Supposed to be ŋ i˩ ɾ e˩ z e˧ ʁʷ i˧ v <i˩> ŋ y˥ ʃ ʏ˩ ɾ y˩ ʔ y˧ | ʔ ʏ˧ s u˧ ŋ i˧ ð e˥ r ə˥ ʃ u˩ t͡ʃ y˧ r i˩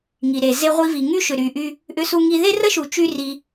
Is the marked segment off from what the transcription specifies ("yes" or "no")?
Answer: no